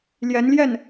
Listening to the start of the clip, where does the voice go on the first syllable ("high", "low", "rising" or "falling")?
rising